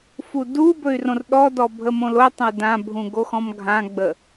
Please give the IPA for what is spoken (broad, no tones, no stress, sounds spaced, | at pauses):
f u d u b ɵ y̯ r õ r ɗ ɔ d ɔ bʱ ə m õ l o tˤ ə̃ y̯ d ã bʱ ũ ɡ o x ɔ̃ m ɡʱ ã ɡ͡b ə